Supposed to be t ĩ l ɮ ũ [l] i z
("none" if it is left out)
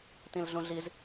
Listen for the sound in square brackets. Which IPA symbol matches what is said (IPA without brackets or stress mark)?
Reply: ɮ